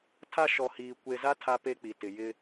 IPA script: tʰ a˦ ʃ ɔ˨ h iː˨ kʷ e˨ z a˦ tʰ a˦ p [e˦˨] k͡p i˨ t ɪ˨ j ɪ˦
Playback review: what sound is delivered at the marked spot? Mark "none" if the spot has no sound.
e˦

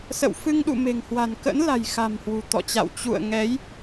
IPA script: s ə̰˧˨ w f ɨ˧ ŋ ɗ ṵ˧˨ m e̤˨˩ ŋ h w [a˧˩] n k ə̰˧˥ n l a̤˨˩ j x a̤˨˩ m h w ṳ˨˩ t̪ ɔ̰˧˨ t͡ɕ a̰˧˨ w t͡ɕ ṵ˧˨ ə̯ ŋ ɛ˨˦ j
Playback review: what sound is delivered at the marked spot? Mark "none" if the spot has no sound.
a̤˨˩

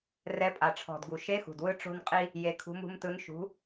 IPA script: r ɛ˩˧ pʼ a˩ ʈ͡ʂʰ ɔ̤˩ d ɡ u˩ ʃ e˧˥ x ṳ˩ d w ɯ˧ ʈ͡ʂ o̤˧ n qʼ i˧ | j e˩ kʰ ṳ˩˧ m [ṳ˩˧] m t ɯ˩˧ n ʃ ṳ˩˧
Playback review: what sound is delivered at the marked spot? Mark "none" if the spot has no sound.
ṳ˩˧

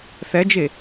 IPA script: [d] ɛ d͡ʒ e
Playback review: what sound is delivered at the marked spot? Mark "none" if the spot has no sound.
θ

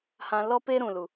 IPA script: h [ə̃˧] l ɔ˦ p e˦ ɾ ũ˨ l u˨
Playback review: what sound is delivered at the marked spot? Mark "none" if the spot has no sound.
ã˧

